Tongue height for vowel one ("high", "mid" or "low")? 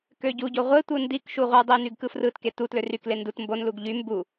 mid